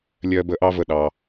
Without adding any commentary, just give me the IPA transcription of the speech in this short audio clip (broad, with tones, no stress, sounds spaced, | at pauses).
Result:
lʲ ɜ˦ b ə˦ ʔ ɑ˦ v ə˧ ɗ ɑ˧